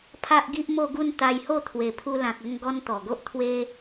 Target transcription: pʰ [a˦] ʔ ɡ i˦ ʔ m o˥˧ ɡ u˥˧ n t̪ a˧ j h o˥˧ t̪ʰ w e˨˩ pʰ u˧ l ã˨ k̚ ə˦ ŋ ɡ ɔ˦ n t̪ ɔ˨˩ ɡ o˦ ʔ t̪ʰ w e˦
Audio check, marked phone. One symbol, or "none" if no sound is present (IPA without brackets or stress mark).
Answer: a˦